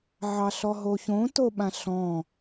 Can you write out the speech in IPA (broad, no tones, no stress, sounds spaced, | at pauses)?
ʕ ɑ ɬ ɔ ɦ o ç õ t o ɓ ã ɬ ɔ̃